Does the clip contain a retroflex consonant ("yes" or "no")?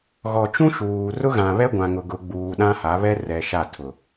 no